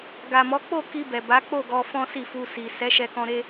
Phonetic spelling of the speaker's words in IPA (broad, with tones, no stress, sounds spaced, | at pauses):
ɡ a˨ m ɔ˨˦ k͡p o˦˨ k i˧ b ɛ˨ b a˨˦ k͡p o˦˨ ɡ ɔ˧ f ɔ̃˦ s i˦˨ f u˧ s i˨ s ɛ˨˦ ʃ ɛ˧ k ɔ̃˧ ɾ e˦